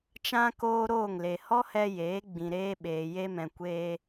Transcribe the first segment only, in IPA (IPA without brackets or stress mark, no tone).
t͡ʃ